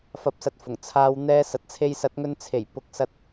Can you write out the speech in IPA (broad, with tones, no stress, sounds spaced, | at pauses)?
f ɐ˨˥ p̚ s ɐ˨ t̚ f ʊ˨˩ ŋ t͡sʰ aː˧ w n̪ ɛː˧ s ɐ˨ t̚ t͡sʰ e˧ j s ɐ˨˥ t̚ ŋ ɵ˧ n t͡sʰ e˨˩ j p ʊ˨ k̚ s ɐ˧ t̚